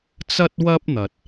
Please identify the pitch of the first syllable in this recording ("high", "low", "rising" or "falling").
high